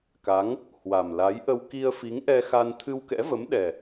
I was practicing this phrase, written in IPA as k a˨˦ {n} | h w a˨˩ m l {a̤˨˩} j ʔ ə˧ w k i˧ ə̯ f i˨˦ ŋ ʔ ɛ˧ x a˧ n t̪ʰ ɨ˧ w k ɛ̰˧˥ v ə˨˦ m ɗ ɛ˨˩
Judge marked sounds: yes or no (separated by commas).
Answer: no, no